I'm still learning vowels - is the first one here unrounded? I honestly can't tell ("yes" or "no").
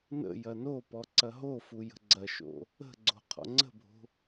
yes